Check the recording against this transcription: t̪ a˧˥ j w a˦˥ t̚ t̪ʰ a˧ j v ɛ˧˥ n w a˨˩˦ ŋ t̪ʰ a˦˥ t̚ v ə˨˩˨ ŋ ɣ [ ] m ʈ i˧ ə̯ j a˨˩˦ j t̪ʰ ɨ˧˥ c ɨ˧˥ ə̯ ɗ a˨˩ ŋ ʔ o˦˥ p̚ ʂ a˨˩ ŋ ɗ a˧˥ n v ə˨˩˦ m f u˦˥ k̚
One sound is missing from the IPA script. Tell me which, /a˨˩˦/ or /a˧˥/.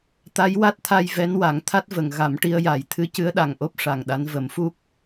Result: a˨˩˦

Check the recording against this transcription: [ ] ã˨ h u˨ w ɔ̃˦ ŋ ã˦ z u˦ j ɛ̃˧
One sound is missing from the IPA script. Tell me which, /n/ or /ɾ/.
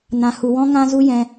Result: n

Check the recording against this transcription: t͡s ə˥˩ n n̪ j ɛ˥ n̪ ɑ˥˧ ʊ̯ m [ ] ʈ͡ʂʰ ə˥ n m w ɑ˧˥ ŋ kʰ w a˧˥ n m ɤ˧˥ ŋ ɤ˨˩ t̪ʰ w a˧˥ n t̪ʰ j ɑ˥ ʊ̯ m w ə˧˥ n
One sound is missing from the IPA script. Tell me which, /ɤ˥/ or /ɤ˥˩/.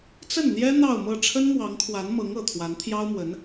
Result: ɤ˥˩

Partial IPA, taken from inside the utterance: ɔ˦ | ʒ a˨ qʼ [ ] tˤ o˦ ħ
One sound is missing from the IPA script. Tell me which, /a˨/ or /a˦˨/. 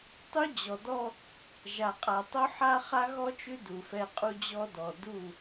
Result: a˨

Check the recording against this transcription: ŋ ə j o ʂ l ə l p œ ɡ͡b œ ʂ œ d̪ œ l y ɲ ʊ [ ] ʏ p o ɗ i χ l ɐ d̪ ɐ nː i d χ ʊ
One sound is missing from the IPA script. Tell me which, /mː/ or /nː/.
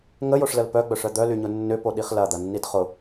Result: nː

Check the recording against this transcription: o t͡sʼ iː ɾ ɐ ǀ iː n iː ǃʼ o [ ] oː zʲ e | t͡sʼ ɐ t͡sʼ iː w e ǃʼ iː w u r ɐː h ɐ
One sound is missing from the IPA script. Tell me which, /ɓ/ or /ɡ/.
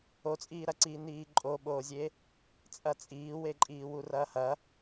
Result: ɓ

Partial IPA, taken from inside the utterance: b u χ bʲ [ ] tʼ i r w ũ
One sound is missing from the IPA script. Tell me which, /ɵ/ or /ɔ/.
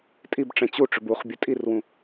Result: ɵ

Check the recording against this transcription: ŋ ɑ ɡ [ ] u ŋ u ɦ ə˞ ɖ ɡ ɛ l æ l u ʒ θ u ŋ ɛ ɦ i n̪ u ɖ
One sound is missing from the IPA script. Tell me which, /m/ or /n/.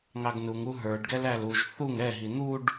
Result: n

